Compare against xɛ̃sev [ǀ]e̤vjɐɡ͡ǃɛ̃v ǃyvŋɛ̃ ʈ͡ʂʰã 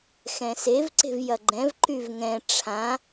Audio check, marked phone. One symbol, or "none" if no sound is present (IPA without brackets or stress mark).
ǀ